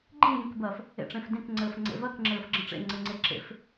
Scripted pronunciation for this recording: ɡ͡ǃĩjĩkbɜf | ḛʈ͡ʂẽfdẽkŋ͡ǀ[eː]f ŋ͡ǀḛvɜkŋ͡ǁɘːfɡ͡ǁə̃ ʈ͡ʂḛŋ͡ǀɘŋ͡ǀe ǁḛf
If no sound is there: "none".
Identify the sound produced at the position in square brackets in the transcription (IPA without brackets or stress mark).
ɘː